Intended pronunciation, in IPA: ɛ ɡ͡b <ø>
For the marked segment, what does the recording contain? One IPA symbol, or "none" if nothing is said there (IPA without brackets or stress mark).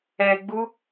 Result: u